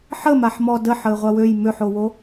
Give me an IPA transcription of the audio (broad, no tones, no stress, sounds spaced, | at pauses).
ħ ə m a ħ m ɔ d ə ħ ə ɪ̯ ʁʷ a w ø j m ø ħ o w o